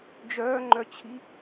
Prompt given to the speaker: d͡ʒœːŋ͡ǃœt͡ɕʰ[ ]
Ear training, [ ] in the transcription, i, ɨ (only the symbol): i